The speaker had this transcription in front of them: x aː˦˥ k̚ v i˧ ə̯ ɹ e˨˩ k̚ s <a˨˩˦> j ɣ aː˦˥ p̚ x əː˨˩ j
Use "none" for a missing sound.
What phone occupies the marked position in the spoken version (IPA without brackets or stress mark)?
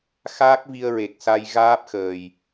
a˧